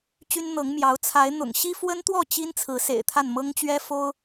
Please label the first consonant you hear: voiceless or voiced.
voiceless